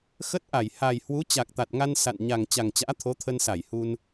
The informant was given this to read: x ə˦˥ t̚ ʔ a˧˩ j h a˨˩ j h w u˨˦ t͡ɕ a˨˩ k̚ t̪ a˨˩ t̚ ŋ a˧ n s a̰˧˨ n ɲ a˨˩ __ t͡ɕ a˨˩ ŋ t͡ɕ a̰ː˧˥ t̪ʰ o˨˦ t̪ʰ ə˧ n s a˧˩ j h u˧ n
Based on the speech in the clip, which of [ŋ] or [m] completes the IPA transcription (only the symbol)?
ŋ